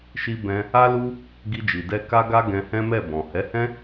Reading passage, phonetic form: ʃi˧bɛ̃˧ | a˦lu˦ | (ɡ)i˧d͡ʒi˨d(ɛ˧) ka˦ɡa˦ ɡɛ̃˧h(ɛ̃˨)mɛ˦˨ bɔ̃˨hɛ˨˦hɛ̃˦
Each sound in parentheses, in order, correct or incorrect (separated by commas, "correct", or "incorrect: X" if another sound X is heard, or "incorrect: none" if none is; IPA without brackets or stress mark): correct, correct, incorrect: ɛ̃˦